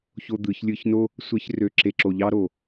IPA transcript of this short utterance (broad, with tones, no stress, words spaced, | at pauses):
ço˦d̪ɯ˨˦ç lʲɯ˧çno˦ | sʷe˦çrø˧ǁe˧ǁo˧ ʎɑ˦ɾo˨